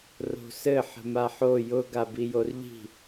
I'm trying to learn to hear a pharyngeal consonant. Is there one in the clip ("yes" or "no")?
yes